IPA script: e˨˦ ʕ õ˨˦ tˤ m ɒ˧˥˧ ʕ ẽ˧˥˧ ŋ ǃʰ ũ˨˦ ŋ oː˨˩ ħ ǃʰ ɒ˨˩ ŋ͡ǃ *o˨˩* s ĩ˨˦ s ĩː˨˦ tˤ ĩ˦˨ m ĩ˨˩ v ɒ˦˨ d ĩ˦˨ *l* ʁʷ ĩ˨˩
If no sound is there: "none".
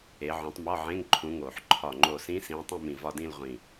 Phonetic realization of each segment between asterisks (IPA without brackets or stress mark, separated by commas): o˨˩, l